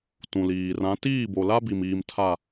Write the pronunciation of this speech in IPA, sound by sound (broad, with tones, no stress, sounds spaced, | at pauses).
t ũ˨ l iː˨ r ã˨˦ t iː˦˨ b o˨ l a˦ b i˨ m iː˨ m tʰ a˨